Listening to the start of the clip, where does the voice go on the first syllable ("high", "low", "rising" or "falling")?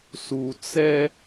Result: low